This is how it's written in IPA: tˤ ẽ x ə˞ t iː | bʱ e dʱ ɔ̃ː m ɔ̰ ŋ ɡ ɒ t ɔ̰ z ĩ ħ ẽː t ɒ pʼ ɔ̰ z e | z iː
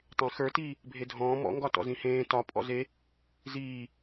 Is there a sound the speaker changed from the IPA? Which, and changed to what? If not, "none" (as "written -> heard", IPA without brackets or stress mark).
ħ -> h